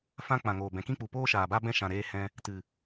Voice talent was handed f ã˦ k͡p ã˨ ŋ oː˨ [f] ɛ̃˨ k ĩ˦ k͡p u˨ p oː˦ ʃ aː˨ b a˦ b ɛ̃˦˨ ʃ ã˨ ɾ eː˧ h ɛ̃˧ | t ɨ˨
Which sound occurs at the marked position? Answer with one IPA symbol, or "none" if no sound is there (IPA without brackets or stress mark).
b